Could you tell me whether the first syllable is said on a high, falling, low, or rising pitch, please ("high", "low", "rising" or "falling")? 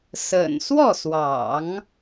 low